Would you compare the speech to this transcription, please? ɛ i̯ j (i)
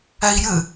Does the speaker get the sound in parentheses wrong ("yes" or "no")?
yes